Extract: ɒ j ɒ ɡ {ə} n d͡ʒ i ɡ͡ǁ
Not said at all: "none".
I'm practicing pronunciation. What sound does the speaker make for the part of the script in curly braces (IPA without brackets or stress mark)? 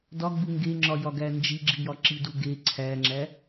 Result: æ